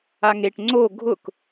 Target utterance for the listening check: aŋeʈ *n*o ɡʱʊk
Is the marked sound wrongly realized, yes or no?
yes